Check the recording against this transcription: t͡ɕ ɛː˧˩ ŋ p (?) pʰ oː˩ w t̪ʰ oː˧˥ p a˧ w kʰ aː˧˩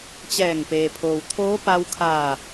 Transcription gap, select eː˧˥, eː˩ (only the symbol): eː˩